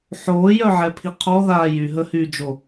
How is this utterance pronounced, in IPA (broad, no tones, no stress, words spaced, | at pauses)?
ħoːjœʕɛpʰi qʰɔðaː jyɦəhyːd͡ʒo